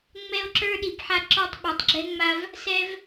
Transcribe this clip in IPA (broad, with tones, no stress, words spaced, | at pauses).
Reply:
ŋ͡mɛ˦o̯ǁə˞˦ ɗi˨pħa˦ǁɔ˦tˤ ɓa˨tˤɡ͡ǁɛ˦ŋ͡ma˦v | sɛ˦v